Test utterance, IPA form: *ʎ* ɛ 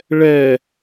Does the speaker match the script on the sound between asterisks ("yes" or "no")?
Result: no